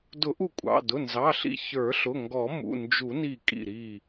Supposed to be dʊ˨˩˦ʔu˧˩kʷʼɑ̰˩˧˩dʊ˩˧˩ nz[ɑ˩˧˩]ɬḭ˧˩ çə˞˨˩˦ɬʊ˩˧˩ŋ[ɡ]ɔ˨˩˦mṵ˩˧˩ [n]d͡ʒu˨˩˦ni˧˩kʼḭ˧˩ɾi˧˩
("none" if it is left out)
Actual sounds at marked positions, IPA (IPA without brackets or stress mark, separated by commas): ɑ˩˧˩, ɡ, n